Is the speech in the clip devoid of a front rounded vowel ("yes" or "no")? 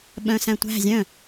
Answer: no